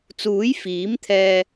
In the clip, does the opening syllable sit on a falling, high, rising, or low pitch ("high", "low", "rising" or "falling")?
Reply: rising